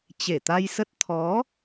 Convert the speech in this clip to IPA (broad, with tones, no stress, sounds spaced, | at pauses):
t͡ɕ e˧˩ t̪ a˧ j s ə˦˥ t̚ t̪ʰ ɔ˨˦